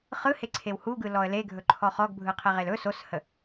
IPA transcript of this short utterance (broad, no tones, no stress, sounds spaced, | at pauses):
χ ɯ h e ǀʰ e w h u ɡ ɯ l ɔ ə̯ l e ɡʱ ɵ ǃʰ ɔ χ ɔ ɡ bʱ ɯ qʰ e ʁ e l ɵ s o s h ə